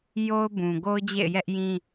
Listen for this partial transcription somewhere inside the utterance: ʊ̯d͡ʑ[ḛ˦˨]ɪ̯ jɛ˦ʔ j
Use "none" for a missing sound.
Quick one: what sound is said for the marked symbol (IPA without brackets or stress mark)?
ḛ˦˨